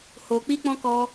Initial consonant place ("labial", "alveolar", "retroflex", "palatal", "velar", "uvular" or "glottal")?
glottal